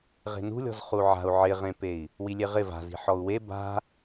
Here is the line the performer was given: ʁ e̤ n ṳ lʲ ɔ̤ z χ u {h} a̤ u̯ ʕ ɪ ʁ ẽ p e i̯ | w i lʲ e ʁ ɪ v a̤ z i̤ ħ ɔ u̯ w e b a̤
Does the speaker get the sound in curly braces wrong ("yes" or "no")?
yes